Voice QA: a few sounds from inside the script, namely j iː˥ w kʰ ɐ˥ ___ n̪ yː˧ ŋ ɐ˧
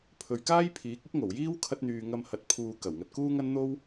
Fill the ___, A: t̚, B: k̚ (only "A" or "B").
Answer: A